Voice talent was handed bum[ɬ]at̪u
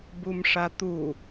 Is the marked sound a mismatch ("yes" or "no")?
yes